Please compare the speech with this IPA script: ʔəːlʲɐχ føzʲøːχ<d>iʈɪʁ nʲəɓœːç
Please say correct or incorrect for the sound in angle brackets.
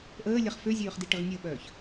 correct